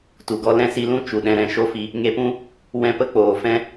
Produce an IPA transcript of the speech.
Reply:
t u˨ ɡ ɔ˦ l ɛ̃˦ s i˧ l ũ˦ t͡ʃ u˨ ɗ ɛ̃˧ ɾ ɛ̃˨ ʃ o˦ f i˧ | ŋ e˧ p ũ˦ | w ɛ̃˧ p ə˦ k͡p oː˨ f ɛ̃˦

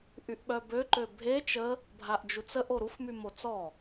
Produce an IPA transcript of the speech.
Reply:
ʔ y ʔ ɓ œ b ø ǃ ø bʱ e t͡ʃ ə | bʱ a ʔ d͡ʒ u t͡s ə ʔ o ɾ u f m y m o t͡s ɔ

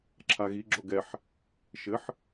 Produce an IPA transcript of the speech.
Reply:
ǁʰ a ɣ i ɡ͡ǁ o ɡ ɛ ħ | ʃ ɘ ħ

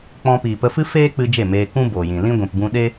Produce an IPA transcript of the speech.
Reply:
k͡p ɔ̃˧ p iː˨ p ə˧ f ɨ˦ f eː˦ k͡p ɨ˧ d͡ʒ e˦˨ m eː˧ k ũ˦ b oː˨ j ĩ˨ l ĩ˦ ɡʷ ĩ˨ p b ũ˧ ɗ e˦

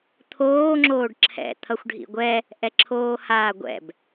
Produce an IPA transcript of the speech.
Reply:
t̪ʰ oː ŋ͡ǁ oː ɖ ǁʰ ɛ̰ t̪ʰ ʌ xʷ ɖʱ ḭ ɡʷ ɛ | ʔ ɛ ǁʰ oː h aː ɡʷ ɛ̰ b

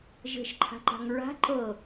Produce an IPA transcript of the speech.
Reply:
ʒ e̤ ʃ ǃʰ a̤ ǃ a̤ ŋ ɹ a̤ ǃ ɤ

